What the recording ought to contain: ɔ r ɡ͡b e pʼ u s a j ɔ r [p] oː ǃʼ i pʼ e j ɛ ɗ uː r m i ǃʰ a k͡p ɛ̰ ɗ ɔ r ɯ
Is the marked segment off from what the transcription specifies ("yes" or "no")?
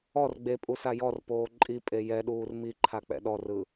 no